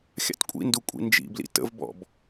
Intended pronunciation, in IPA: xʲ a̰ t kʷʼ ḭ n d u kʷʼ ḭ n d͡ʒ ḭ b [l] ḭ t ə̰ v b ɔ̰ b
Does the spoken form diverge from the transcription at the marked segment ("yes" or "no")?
no